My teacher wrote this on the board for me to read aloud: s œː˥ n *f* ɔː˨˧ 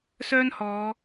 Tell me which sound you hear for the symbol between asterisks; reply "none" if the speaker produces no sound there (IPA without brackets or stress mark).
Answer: h